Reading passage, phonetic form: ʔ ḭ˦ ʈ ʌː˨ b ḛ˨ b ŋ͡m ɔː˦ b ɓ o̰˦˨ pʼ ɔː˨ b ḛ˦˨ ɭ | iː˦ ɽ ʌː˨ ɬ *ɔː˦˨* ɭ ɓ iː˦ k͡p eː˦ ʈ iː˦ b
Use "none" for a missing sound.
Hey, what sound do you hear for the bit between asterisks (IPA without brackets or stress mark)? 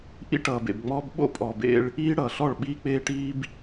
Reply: ɔ˦˨